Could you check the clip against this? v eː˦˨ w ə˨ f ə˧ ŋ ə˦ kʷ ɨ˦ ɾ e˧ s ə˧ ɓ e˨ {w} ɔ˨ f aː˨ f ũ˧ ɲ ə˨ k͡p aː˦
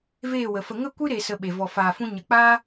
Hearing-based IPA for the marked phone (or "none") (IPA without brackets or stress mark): v